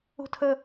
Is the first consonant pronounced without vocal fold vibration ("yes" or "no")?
yes